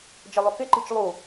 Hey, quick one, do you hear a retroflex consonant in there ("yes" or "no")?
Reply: no